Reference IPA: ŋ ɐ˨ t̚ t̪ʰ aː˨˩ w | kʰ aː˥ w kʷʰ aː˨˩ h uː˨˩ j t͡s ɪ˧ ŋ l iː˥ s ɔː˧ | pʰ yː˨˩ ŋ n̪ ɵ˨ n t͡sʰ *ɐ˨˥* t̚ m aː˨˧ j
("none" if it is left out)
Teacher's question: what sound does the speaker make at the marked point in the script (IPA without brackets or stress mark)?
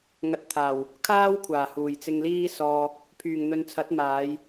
ɐ˨˥